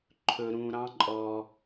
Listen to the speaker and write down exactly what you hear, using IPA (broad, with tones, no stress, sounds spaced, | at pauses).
ǃʰ ɵ˧ ɾ ũ˧ ɾ ɑ̃˦ ǃʼ ɔ˧